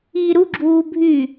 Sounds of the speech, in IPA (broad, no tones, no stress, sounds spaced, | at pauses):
iː ɾ u ɡ͡ǁ uː bʱ y